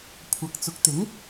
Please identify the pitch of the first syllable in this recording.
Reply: rising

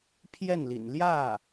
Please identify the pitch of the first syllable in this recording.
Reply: falling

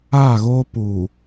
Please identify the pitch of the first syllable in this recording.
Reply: falling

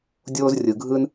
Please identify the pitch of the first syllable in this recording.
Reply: high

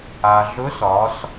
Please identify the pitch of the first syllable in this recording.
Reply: low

